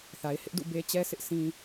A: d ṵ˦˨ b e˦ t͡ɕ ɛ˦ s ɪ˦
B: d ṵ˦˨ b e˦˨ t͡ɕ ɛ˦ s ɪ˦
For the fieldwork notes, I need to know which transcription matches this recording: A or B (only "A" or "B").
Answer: A